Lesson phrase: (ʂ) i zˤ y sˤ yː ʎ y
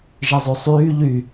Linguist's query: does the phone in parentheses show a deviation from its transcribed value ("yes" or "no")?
yes